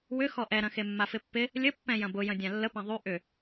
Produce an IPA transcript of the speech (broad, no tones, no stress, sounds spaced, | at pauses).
w ʏ x ɔ ʔ ɛ ɾ ɐ̃ x e mː a f ɪ pː ɪ | lʲ ə pː ɛ̃ j ɐ̃ b ʊ j ɐ̃ dʲ ã lː ə p ɛ̃ ðˤ y ʔ ʏ